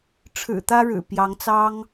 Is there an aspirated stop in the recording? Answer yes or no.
yes